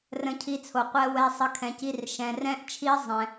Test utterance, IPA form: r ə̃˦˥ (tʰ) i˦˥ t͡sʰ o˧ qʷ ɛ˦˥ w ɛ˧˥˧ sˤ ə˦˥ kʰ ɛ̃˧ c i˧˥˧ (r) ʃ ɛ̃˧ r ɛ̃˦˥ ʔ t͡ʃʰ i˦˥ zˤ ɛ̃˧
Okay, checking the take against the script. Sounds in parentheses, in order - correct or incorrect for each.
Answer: incorrect: cʰ, correct

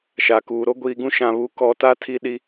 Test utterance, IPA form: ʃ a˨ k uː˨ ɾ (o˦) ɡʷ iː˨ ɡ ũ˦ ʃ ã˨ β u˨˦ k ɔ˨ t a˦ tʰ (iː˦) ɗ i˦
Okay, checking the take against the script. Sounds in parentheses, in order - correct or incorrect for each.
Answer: correct, incorrect: i˦

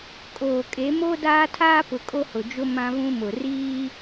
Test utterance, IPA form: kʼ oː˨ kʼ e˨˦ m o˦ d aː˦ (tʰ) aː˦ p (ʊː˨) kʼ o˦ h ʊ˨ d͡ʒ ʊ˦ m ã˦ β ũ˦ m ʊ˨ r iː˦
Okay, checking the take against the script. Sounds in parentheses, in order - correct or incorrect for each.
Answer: correct, incorrect: ʊ˨

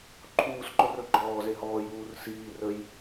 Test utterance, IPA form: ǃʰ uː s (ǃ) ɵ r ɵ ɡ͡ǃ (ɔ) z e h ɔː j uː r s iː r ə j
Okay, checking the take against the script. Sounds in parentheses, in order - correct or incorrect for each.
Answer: correct, incorrect: ɔː

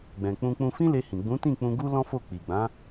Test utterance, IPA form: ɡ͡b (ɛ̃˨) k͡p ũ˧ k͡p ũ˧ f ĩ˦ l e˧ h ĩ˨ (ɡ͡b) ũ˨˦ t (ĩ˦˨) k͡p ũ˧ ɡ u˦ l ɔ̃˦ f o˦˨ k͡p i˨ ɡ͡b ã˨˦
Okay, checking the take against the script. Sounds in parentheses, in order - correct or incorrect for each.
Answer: correct, correct, correct

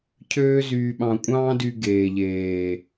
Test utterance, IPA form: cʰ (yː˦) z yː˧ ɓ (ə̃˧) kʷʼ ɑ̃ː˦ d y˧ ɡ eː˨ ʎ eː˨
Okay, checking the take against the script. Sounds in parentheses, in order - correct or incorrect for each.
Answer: incorrect: øː˦, incorrect: ɑ̃˧

